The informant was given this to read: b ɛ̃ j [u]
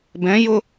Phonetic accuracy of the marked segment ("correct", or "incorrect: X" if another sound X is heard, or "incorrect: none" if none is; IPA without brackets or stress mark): incorrect: ʊ